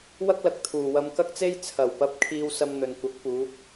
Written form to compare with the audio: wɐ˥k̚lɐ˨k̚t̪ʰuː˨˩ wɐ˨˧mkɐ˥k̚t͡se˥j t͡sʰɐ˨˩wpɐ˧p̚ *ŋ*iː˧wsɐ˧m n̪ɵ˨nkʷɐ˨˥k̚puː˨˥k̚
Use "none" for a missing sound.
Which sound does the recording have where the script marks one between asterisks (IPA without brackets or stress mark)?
kʰ